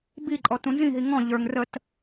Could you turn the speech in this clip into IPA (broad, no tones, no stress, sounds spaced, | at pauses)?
b i ǃʼ ɔ t ũ n z ĩ ɦ i ŋ ɔ̃ ʎ ə˞ ŋ r ə t